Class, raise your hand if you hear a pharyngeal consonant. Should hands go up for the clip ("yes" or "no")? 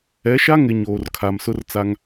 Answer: no